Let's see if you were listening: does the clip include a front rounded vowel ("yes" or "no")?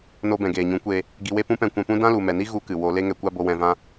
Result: no